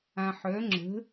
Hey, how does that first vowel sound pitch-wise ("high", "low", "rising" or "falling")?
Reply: low